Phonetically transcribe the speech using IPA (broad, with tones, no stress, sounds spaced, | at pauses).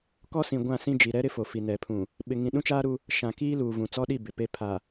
k ɔ˦ s ĩ˨ ɡʷ ã˦˨ s ĩ˦ d͡ʒ i˨ ɾ ɛ˦ ɾ ɪ˦ f o˨ f i˨ n ɛ˨ pʰ ũ˨ | ɓ ɪ˨ ŋ ĩ˨ ɗ ũ˦ t͡ʃ aː˦ ɾ u˦ | ʃ ã˨ k iː˦ l uː˨ v ũ˨ t͡s ɔ˦ ɗ i˦˨ b ɪ˨ p e˦ pʰ a˨